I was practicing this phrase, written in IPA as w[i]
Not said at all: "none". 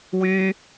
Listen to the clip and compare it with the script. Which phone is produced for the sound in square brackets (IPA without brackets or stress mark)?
y